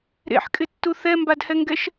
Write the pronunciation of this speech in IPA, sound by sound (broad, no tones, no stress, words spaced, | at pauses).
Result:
ɾḛħkʼɪtːu θɛmbadhɛŋɡɛʃ